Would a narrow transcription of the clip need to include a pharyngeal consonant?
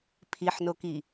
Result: yes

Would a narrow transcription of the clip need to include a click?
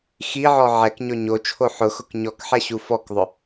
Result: no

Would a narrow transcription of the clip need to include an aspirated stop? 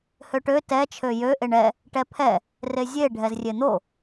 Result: yes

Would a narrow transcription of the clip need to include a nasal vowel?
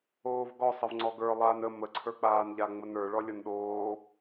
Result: no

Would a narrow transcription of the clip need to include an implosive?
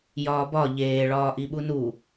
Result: yes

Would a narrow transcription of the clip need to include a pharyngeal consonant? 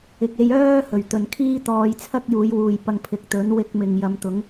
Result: no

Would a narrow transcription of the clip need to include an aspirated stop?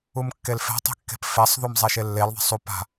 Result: no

